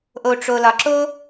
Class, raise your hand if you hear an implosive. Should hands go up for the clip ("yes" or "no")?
no